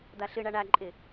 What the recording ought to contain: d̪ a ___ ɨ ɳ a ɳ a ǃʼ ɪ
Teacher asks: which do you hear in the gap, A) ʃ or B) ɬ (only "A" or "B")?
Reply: B